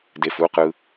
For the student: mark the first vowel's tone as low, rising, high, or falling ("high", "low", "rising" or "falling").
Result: low